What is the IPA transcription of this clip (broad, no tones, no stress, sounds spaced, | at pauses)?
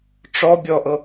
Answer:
ʈ͡ʂ ɔ bʲ ɔ ʔ ɤ